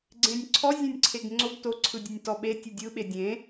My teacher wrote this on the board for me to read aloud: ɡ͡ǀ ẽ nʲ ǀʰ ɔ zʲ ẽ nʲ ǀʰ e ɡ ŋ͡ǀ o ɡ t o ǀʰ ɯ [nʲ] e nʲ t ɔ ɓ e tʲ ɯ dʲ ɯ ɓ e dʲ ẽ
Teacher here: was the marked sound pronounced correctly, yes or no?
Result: no